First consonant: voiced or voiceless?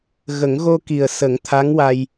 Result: voiced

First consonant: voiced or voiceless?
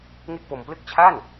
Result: voiced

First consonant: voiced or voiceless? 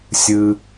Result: voiceless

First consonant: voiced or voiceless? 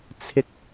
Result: voiceless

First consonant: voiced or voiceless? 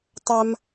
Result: voiceless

